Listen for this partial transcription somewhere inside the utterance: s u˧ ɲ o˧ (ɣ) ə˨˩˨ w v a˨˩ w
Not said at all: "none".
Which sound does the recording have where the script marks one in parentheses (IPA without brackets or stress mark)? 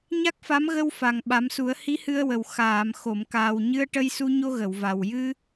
ɣ